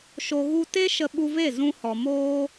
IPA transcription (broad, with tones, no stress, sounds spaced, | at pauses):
ʃ o˧ ɣ u˦ t e˦ ʃ ə˧ ɓ u˧ v e˦˨ z ũ˦ h ɔ˧ m oː˦